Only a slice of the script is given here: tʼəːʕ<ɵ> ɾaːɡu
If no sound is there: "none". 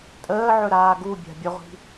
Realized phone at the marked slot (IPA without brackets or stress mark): ɵ